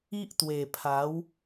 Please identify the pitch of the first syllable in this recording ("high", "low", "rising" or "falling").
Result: high